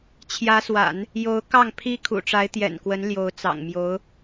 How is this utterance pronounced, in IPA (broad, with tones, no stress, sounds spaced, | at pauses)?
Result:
t͡ɕʰ j ä˧˥ s w a̰˨˩˦ n | j o˧˥ ʊ̯ k ɑ˥˩ ŋ pʰ i˥ kʰ ṵ˨˩ ʈ͡ʂ a˧˥ ɪ̯ t̪ j ɛ̰˨˩ n k w ə˧˥ n l j o˧˥ ʊ̯ t͡s ɑ̰˨˩ ŋ m j o˧˥ ʊ̯